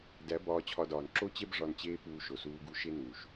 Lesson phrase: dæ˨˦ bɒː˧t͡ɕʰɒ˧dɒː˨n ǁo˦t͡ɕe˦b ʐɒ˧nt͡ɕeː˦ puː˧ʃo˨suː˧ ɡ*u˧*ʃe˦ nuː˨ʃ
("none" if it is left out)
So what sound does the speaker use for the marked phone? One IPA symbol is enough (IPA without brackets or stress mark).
u˧